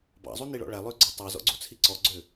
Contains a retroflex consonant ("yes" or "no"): yes